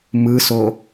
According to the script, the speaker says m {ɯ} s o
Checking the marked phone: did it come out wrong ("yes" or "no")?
no